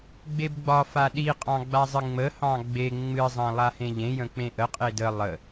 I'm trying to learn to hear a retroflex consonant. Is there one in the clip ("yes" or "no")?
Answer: no